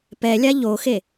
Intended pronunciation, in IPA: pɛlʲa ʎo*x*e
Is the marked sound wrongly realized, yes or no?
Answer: no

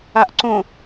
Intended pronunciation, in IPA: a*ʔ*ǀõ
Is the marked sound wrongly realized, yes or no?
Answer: no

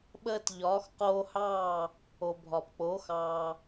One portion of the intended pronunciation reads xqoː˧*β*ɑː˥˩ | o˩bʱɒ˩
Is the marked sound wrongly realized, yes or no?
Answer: yes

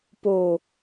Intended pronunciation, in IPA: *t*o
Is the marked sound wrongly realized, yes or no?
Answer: yes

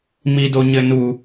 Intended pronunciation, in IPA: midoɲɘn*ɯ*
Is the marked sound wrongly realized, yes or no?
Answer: yes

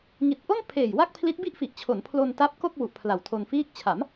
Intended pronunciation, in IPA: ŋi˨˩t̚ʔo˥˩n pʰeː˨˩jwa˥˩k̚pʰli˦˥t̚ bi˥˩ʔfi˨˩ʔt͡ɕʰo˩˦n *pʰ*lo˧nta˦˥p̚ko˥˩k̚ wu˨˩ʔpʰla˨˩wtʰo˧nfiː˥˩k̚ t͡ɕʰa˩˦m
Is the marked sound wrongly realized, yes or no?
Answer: no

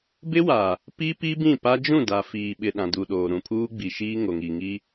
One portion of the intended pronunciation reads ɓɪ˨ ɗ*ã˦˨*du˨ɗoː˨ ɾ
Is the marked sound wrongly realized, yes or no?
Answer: yes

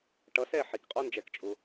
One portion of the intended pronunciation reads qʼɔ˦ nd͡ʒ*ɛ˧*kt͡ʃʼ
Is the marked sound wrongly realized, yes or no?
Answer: no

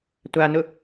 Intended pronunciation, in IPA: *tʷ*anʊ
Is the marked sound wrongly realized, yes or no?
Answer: no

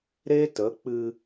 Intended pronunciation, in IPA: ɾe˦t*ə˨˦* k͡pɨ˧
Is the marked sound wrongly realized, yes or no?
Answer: no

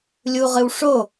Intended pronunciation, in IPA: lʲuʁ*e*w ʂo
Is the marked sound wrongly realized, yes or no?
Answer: yes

